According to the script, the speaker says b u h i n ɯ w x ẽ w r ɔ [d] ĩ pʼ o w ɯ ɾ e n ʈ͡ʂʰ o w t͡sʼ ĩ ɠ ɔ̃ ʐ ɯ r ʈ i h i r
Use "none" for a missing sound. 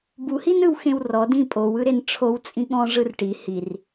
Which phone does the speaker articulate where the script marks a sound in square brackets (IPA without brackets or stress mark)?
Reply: d